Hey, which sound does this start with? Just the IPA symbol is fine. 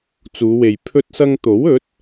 t͡s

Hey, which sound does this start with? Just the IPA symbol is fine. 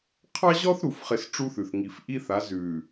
qʰ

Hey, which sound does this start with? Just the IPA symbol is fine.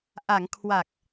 ʔ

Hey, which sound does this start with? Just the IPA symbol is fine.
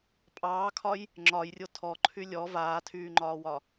pʼ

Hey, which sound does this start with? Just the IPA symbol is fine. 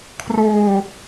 kʰ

